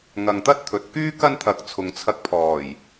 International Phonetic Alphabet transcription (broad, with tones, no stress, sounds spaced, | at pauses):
ŋ ɐ˨ ŋ t̪ ɐ˥ t̚ t̪ʰ ɵ˨ t̚ k yː˥ k ɐ˥ n t̪ʰ ɐ˨ k̚ t͡sʰ ʊ˨ ŋ t͡sʰ ɐ˧ k̚ pʰ ɔː˨˩ j